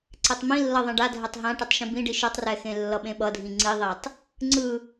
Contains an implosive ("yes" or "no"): yes